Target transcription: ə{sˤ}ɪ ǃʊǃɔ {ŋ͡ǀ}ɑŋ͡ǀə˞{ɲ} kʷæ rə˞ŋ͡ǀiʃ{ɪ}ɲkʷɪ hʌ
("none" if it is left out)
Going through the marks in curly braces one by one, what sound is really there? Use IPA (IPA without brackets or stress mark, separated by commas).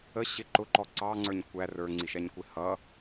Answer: ɕ, ǀ, ɲ, ɛ